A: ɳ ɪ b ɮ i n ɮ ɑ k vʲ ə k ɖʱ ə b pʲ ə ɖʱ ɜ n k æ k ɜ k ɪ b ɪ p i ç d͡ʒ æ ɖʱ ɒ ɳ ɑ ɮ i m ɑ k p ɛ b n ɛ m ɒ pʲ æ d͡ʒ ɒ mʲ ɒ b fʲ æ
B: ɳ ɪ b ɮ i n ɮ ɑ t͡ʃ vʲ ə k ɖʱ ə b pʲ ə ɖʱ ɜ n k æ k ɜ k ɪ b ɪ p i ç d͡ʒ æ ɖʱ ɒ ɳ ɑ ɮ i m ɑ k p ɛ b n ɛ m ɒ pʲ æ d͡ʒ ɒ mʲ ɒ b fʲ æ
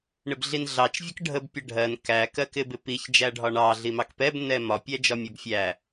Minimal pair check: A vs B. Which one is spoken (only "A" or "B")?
B